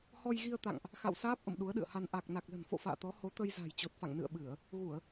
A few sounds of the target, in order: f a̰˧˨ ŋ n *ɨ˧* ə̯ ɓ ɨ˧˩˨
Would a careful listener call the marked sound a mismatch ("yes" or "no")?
yes